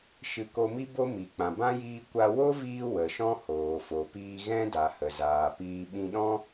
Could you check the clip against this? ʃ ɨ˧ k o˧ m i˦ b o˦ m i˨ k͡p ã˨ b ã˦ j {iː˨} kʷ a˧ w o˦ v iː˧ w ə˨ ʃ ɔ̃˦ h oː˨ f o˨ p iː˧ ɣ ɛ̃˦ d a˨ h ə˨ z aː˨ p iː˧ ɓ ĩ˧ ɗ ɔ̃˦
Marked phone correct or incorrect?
incorrect